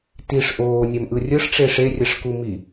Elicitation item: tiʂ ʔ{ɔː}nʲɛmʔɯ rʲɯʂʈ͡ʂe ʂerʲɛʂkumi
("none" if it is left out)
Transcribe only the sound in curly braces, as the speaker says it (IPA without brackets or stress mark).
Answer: oː